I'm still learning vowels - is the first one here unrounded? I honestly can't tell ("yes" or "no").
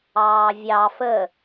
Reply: yes